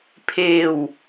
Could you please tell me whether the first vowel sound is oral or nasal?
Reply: oral